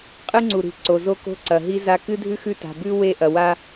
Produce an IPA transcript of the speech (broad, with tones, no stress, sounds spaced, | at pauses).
qʼ ɨ˦ ŋ͡ǀ u˨ ɾ i̤˨ ǀ o˨ z o˦ k o̤˦ ǀ ɐ˨ ɦ i˦ z a˦ k ɨ˦ dʱ ʉ˦ x ʉ˦˨ t a̤˨ b ʉ˦ w e˦˨ ʔ ɐ˨ w a˦